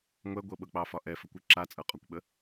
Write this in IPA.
ŋʷ ɛ ɡʷ ɤ ɓ ɤ k͡p ɑ f ɒ ʔ ɛ f ə kʷ ɯ ǁ a t͡sʼ ɤ qʼ ɒ kʷ ɓ ə

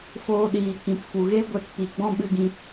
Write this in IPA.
f oː˧ ɗ iː˨ k ĩ˨ p f u˨ ɣ e˦ ɡʷ ɛ˧ t p i˨ ɡ͡b ɔ̃˦ ɓ ɨ˧ ɡ ĩ˧

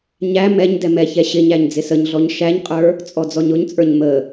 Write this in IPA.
ɲ æ m ɛ ɲ d ɛ m ɛ ç ɛ ɕ ɪ ɲ æ ɲ d͡z ɪ s ə ɲ ɮ ɔ ɲ ʃ æ ɲ qʼ ə˞ | t͡sʼ ɔ d͡z ɔ ɲ ʊ ɲ t͡sʼ ə˞ ɲ m ə

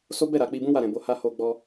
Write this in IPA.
s o˦ b ɛ˦˨ ɾ a˨ k͡p i˧ b ũ˦ w a˦˨ ɾ ɛ̃˨ b o˧ h a˦ h o˧ ɡ͡b ɔ˧

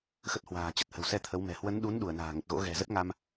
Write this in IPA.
x ə˦˥ t̚ h w a̤ː˨˩ t͡ɕ ə˨˩ t̚ h ə̤˨˩ w s ɛ˧ t̪ʰ ə˨˦ w m ɛ̤˨˩ h w ə˨˦ n ɗ u˨˦ n ɗ u˧˩ ə̯ n a̤ː˨˩ ŋ ə˨˩ t̚ ɣ o̰˧˥ ɣ ɛ̤˨˩ z ə˦˥ t̚ ŋ a˧ m

